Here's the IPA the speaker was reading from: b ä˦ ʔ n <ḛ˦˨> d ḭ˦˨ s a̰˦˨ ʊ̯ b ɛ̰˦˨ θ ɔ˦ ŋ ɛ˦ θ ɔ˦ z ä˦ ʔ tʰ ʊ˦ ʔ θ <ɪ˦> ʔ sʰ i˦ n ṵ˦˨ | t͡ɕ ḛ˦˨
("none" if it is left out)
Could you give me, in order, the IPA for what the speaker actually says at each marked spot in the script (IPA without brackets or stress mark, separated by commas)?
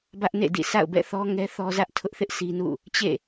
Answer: ḛ˦˨, ɪ˦